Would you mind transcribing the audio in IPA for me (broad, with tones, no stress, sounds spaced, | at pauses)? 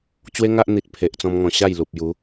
t͡ɕ w e˦ ŋ a˦ ʔ n̪ i˨ t̚ pʰ e˨ ʔ t͡s ɔ̃˧ m ŋ ɔ̃˨˩ ɕ a˥˧ j l u˨ p̚ j u˨˦